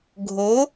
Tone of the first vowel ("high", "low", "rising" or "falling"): rising